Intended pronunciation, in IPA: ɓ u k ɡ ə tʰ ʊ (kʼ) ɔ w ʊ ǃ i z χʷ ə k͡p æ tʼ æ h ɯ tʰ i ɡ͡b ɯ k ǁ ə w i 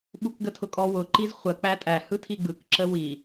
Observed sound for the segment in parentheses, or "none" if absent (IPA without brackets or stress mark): kʼ